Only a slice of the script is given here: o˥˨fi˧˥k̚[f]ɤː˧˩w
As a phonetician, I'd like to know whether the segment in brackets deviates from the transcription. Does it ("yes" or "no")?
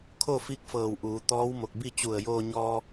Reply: no